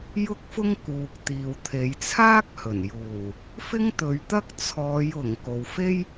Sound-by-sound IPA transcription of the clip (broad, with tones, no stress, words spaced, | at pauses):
jʊ˥k̚fʊ˥ŋ kuː˨k̚t̪iː˨w t̪ʰe˨˧jt͡sʰaː˥k̚hɵ˨˩n juː˨˩ | fɪ˥ŋt̪ɵ˨˧ɥt̪ɐ˥k̚ t͡sʰɔː˨˧jʊ˨˩ŋ ko˨wfe˥j